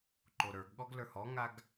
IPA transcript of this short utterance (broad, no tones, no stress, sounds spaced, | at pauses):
ǃ o ɾ ə˞ ɡ ɠ ɔ ɡ l ə˞ h ɔ ŋ a ɡ